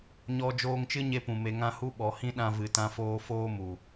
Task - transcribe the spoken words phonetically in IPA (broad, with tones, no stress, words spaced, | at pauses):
ɲɔ˧ d͡ʒoː˧ŋt͡ʃɨ˦ɲe˧pũ˨ me˧ŋã˦ hu˧ ɓɔ˨hĩ˦ɗã˧vɨ˨ tã˦foː˦ foː˦ mu˨